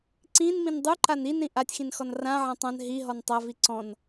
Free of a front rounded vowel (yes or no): yes